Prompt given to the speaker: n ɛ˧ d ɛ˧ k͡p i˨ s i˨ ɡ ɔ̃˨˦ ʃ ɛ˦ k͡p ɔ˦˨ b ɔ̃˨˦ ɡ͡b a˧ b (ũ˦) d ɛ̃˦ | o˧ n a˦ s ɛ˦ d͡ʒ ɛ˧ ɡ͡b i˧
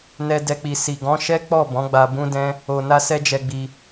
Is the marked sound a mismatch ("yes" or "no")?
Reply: no